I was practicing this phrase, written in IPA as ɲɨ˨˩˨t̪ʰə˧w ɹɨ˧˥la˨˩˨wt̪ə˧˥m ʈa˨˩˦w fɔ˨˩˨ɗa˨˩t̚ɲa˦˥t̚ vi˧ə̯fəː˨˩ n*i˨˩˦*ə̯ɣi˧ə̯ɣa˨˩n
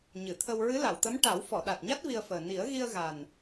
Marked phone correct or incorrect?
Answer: correct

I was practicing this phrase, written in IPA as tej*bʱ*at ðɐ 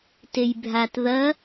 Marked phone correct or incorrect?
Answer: correct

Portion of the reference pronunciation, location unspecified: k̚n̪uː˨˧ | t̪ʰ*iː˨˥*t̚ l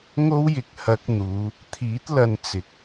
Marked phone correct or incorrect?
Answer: correct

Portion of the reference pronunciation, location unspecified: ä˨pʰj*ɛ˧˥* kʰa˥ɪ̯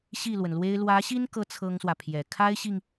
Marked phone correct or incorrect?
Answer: incorrect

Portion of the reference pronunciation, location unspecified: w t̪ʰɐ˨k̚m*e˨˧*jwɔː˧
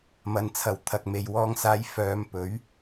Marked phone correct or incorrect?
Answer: incorrect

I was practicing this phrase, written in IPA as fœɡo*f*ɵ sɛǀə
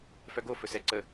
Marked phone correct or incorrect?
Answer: correct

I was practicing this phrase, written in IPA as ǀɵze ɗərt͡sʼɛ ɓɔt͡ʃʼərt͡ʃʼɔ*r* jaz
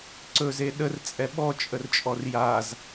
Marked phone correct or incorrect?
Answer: correct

